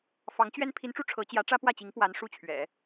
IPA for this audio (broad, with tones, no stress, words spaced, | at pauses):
fɑ˧˥ŋt͡ɕɥɛ˥n pʰi˧˥nʈ͡ʂu˥˩ ʈ͡ʂʰɤ˧˥ t͡ɕjä˧˥ʈ͡ʂä˥pwä˥˩t͡ɕi˧˥ŋ pwa˧˥n ʂu˥˩t͡ɕʰɥɛ̰˨˩˦